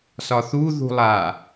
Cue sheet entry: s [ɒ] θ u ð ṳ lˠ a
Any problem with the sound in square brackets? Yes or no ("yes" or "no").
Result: no